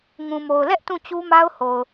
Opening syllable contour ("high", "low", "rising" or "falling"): low